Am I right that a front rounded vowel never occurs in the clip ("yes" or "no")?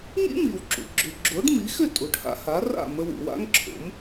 no